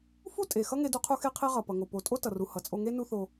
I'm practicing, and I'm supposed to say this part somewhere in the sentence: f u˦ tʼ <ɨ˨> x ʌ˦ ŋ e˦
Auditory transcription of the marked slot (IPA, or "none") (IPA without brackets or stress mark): e˨